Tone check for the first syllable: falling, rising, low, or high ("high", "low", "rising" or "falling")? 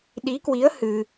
rising